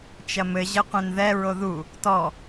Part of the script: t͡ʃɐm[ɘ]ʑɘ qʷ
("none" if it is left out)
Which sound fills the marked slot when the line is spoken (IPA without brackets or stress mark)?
ɘ